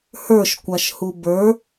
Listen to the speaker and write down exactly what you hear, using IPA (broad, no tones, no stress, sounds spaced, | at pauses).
h ə˞ ʃ kʷ a ʃ h u b ə˞